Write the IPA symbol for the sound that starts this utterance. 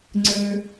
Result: ŋ͡ǀ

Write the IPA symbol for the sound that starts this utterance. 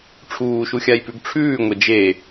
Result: ʈ͡ʂʰ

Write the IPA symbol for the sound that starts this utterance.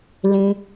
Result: l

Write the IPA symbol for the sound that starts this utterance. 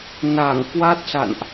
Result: n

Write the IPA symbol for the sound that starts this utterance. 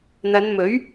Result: n̪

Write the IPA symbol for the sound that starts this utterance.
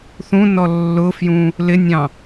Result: θ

